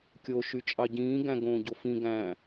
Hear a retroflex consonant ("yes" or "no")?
no